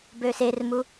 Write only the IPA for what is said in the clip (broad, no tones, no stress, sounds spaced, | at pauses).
b ø s e r m u